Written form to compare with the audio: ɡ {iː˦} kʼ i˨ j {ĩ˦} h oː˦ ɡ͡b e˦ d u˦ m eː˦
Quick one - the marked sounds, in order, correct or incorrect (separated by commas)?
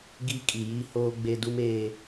incorrect, incorrect